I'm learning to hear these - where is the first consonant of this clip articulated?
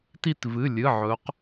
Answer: tongue tip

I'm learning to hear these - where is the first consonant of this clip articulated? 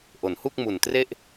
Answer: throat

